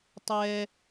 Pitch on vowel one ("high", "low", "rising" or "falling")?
low